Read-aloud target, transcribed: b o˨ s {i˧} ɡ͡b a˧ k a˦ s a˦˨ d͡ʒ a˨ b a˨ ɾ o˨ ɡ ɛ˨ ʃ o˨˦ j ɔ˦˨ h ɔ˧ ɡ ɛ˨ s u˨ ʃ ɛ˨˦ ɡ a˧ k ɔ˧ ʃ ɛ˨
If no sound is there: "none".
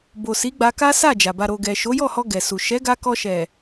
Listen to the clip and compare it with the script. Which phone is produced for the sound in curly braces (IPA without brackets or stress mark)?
i˨˦